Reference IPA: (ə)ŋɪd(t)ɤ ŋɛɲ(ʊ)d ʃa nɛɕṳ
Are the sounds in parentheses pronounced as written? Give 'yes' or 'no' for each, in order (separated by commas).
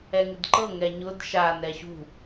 no, no, yes